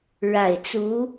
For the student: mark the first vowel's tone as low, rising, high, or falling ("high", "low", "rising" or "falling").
low